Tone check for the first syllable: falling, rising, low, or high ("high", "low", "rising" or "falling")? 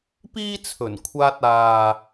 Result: high